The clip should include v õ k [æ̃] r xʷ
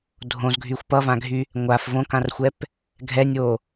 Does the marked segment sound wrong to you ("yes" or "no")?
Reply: yes